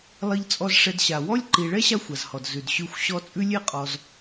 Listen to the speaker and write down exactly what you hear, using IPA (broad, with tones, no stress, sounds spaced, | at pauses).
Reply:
lˠ i˦ ʎ t͡sʼ ɔ˦ z ʂ ɛ˨ d ɕ a˩ w ɔ˥ lʲ ǃ i˨ ɭ ɛ˥ ɕ a˦ xʷ a˩ z h ɔ˩ d z ʉ˩ d ɕ ʉ˨ xʷ ɕ ɔ˦ t͡sʼ ʉ˦ lʲ e˦ qʼ ɔ˨ z